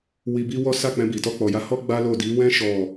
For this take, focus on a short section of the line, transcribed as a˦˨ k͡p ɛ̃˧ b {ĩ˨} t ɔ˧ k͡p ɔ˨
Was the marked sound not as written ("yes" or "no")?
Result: yes